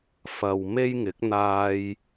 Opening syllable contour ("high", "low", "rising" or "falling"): low